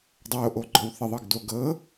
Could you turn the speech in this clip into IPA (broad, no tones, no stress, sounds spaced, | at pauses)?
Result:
dˤ o ʔ o ɡ͡ǃ ɔ w θ ə ðˤ ɤ ɡ d o ɡ ɤ